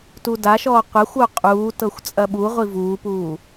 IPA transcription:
tudaʃɔː qʷɐxʷ oqʼuːtɤxʷ t͡sʼɐɓuʁʷi vuːpuː

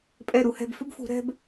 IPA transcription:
pʼɛ˧˩ɾu˩˧hɛ̤˧˩b fʏ˥bfṳ˩˧ ɾɛ̤˧b

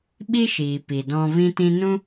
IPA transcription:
ɓi˦ʃiː˨ pi˨dɔ̃˧vĩ˦tĩ˦ nũ˦

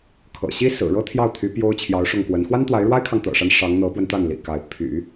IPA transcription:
kʰɤ̰˨˩ɕi˥ sɹ̩˨˩ɻɤ˥t̪ʰjɑ˥˩ʊ̯t̪ʰy˧˥ pjo˥ʊ̯t͡ɕʰjɑ˧˥ʊ̯ʂʊ˥˩ŋkwə˧˥n xwa˥nt̪wa˧˥ɪ̯ɻwa˥ɪ̯kʰɑ˨ŋ t̪ɤ̰˨˩ʂa˦n ʂɑ˧˥ŋ n̪ɤ˧˥pwə˧nt̪a˥˩nlḭ˨˩ ka˧˥ɪ̯ pʰy̰˨˩˦

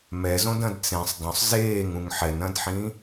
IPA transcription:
mɛzõd ɐ̃dt͡sẽsˤ dˤũsˤ zeːŋ ũŋħɛnɐ̃dħĩ

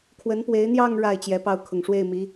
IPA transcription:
kʰwə˧˥npwe˧˥ɪ̯n̪jɑ˥˧ŋ ɻa˥˩ɪ̯ t͡ɕjɛ˧˥pɑ˥˩ʊ̯ kʰʊ˨˩ŋʂwe˥˩ɪ̯mi˧˥

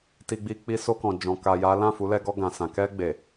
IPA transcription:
ti˧ɡ͡bi˧ k͡pi˧so˧kɔ̃˨ d͡ʒɔ̃˨ka˨ ja˨˦ lã˦˨fu˨˦lɛ˧ɡɔ˧ ɡã˨ sã˨kɛ˧ ɡ͡be˨

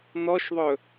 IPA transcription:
nɔʃðˤɵ

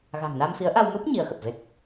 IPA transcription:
ɣa̤˨˩ŋna˧mfi˨˦ə̯ʔa˧w mu˦˥p̚ ɲi˨˦ə̯xə˨˩p̚ve˦˥k̚

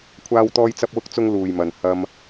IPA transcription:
kʷʰaː˥wt̪ɔː˥j t͡sɐ˥p̚wʊ˥k̚t͡sʊ˥ŋ luː˨jmɐ˨n hɐ˥m

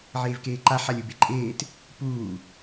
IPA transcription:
ʕeːvkeːǃa ħalʲubeǃʼeːt | puː

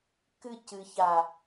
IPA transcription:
kɨcɨça

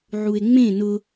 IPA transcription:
ʕue̯ŋ͡mẽ nʊ

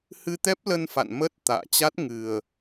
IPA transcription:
hɨ˧t̪ɛ˦˥p̚lə˧n fa̰˧˨nmə˦˥t̚ t̪a̰ː˧˨t͡ɕa˦˥t̚ ŋɨ˨˩ə̯

